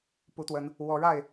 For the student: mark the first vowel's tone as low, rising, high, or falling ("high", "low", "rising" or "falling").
rising